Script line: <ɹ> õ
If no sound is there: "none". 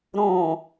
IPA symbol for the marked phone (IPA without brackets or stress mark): ɾ